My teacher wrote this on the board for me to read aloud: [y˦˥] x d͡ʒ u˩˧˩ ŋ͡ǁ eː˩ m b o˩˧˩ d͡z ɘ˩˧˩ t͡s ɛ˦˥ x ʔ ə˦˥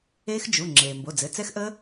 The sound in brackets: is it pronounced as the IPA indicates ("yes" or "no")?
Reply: no